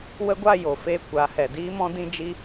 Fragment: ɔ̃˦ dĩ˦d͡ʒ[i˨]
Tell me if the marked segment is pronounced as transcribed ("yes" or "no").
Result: no